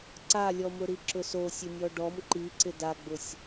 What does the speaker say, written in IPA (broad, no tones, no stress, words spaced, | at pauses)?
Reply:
ǀalʲɔmʊɾi ǁʊsosʲʊ nʲɔɖɔm ǃiǀɪ daɡ͡bʊsʲ